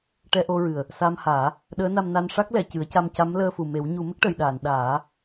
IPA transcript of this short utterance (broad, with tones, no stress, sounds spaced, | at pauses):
ʈ ɛ˧ ʔ o˧ ɹ ɨ˨˩ ə̯ | s a˧ m h aː˨˩˦ | ɗ əː˧˥ n a˧ m n a˧ n ʂ a˦˥ k̚ l ɛ˨˩˨ c ɨ˨˩˦ ə̯ c a˧ m c a˧˥ m l əː˧ f u˨˩ m e˨˩˦ w ɲ u˨˩˦ m ə˦˥ k̚ ʈ ə˨˩˨ j ɗ aː˨˩˨ n ɗ aː˨˩˦